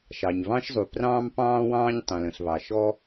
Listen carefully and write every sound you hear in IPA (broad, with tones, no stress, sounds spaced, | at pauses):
ʃ ɑ˩ ɲ β ɑ̃˥ ʃ zˤ u˩ p r ɑ̃ː˥ m p ɑ̃ː˥ w ɑ̃ː˥ ɲ tˤ ɛ̃˩ l ə̃˩ ɬ β ɑ˩ ʃ ɔ˥